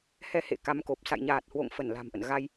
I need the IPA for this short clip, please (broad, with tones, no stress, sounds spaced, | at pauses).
h ɛ˧ h ḛ˧˨ k a˨˦ m k o˨˩ p̚ s a̰˧˨ j ɲ aː˨˩ t̚ h w o̰˧˨ ŋ f ə˧˩ n l a̤˨˩ m ʔ ə̰˧˨ n ɣ a˧ j